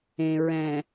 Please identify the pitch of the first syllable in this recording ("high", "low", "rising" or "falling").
low